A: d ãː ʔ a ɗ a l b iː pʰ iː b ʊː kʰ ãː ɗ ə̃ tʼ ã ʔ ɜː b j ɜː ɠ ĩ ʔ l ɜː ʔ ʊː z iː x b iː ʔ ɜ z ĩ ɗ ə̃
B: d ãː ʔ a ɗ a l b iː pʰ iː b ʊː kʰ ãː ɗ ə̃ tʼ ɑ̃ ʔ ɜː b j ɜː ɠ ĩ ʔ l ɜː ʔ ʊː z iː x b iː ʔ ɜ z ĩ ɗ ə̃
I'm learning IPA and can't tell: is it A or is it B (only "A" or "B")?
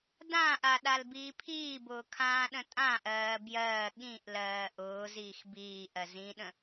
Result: A